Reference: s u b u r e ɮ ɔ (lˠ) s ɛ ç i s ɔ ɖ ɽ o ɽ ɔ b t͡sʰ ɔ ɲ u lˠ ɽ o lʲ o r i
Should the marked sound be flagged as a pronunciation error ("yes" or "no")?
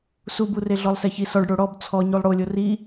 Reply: no